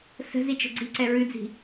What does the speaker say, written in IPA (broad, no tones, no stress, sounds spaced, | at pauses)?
s ə̤ z i t͡ʃ ə̤ ɡ͡ǀ i ǀ ɛ ɹ ʉ d͡z i̤